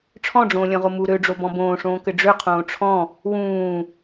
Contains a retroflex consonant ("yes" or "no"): yes